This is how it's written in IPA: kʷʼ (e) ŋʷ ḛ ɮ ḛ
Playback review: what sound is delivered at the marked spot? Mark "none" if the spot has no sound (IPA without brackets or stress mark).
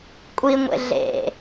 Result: i